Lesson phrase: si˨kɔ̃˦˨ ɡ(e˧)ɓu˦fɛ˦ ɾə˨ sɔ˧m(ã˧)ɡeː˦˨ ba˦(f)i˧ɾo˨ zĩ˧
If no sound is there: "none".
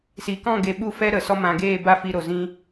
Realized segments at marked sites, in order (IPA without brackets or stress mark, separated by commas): e˧, ã˨, f